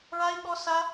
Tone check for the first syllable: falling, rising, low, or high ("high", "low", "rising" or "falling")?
high